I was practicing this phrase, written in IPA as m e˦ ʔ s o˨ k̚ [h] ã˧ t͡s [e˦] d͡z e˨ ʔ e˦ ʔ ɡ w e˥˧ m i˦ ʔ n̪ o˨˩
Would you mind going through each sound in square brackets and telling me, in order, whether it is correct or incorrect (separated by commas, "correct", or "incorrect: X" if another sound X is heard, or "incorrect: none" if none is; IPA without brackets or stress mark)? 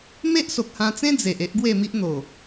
correct, incorrect: ẽ˦